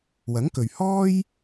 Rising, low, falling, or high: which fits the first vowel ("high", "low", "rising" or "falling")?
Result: rising